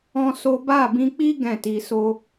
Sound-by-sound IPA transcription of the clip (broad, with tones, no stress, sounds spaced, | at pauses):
ɔ̃˦ s o˦ b a˦˨ b ĩ˧ k͡p i˦ ɡ ɛ̃˦˨ t i˧ s o˦